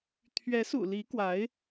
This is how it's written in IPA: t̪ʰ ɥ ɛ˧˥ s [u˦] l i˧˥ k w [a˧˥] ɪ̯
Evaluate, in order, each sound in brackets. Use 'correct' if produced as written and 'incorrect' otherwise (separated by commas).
incorrect, correct